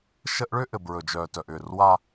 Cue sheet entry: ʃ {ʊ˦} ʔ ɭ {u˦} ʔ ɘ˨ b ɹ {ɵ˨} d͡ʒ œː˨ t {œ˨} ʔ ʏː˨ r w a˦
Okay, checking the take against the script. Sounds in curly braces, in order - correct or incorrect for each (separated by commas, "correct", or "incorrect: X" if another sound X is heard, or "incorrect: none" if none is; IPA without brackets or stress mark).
incorrect: ə˦, incorrect: ʏ˦, correct, correct